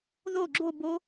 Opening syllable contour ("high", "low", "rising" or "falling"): falling